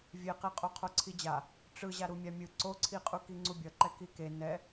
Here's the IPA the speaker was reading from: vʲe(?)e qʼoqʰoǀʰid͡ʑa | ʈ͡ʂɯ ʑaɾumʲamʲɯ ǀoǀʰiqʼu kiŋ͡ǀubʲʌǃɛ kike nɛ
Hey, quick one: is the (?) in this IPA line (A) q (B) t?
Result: A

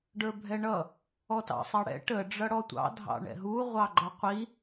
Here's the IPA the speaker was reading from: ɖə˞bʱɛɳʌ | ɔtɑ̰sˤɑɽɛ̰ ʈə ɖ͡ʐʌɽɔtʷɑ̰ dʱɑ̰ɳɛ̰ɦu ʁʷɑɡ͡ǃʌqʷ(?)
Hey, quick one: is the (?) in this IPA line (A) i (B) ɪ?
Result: A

